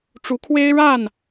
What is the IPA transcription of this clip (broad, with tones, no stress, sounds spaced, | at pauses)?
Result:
ʈ͡ʂ u˨˦ kʰ w e˦ ɪ̯ ɻ a˥˨ n